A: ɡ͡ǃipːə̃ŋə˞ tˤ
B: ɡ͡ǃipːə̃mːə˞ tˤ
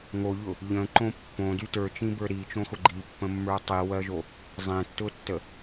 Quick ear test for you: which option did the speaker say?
B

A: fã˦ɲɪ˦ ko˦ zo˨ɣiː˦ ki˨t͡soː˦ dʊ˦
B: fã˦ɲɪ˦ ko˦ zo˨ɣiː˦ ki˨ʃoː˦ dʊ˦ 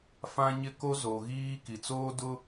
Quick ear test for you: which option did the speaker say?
A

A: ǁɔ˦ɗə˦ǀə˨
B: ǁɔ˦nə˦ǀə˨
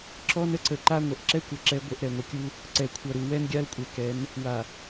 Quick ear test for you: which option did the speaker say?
B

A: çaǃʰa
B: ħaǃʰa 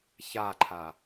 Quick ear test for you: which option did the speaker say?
A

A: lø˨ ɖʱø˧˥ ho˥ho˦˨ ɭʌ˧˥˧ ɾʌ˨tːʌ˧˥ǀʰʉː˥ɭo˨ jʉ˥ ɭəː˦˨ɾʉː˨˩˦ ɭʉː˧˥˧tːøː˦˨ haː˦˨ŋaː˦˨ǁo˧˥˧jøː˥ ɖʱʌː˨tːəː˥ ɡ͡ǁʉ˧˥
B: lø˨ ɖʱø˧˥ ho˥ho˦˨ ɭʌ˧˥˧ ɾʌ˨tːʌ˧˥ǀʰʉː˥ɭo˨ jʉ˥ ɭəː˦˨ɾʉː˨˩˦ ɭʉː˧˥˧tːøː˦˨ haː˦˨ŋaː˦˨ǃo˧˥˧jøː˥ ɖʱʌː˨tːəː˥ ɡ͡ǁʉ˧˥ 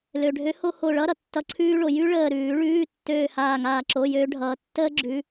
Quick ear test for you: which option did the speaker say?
A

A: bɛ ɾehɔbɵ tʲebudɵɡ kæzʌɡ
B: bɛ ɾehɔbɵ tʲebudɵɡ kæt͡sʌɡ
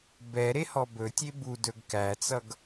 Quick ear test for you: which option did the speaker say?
B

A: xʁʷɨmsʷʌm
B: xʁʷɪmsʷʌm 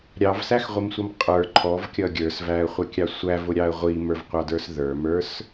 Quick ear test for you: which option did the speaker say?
B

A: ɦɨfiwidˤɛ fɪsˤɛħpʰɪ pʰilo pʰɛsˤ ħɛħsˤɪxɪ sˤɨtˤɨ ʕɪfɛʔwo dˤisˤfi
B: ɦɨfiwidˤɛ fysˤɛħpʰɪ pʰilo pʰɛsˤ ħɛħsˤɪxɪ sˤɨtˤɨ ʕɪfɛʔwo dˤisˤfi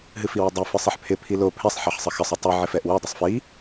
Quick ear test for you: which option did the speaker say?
A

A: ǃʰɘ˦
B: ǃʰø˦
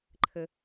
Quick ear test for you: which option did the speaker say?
A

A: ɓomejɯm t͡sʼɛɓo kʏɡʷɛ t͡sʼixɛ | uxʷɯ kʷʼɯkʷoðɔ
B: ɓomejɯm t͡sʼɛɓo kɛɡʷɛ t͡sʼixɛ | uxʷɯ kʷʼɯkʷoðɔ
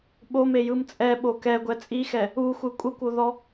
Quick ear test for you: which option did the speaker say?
B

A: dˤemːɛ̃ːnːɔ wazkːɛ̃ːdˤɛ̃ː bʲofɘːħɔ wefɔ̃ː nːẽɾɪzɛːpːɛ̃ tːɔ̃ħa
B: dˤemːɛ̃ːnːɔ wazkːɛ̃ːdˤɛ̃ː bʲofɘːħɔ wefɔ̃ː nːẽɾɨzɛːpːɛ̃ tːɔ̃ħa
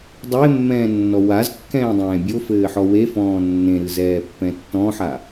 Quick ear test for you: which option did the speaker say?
B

